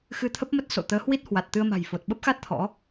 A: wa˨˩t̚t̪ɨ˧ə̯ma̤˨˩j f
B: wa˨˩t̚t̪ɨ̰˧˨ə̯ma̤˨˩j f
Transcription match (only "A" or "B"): A